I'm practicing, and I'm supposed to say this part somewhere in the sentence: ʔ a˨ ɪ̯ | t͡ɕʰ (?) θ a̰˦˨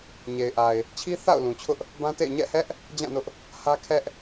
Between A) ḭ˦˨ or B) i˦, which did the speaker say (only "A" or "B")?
B